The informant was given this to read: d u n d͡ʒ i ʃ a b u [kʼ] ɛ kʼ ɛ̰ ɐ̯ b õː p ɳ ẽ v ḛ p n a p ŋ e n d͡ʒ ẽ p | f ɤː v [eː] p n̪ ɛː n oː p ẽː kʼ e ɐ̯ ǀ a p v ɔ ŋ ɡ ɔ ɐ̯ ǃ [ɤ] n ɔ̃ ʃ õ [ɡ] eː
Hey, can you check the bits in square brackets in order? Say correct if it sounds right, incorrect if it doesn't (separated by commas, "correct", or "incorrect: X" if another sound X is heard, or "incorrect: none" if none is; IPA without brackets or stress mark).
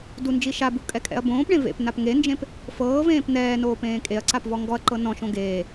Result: correct, incorrect: ẽː, correct, correct